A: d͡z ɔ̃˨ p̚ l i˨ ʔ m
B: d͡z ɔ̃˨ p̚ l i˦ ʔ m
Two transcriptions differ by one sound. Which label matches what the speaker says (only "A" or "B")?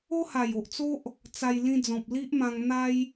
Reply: B